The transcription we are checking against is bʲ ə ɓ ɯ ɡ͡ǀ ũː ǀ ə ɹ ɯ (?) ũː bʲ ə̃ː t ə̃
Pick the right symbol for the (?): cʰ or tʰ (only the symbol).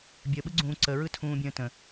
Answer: tʰ